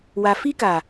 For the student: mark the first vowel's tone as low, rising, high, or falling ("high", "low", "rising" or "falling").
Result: low